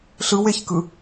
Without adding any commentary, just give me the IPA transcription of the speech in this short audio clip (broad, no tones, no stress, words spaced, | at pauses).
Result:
ɬɯweçkɯ